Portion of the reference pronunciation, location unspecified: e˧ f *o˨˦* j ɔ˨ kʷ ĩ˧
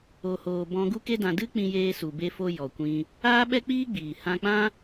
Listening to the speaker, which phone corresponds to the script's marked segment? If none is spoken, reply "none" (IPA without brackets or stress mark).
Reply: o˧